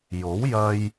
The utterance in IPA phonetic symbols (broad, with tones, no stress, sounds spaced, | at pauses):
j o˨˥ w j ɐ˧ j